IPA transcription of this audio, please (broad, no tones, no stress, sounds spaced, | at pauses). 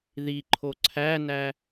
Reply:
ð i ǃʰ o ǀʰ æ n æ